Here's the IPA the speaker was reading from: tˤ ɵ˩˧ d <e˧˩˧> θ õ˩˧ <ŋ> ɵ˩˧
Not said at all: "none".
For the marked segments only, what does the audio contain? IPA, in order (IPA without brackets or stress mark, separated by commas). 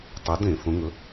ẽ˧˩˧, ŋ